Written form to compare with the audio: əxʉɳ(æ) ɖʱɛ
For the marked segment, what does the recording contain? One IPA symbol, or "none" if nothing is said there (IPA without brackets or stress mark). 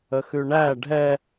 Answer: æ